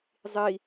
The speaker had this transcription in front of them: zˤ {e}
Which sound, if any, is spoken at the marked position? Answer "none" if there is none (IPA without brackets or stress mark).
i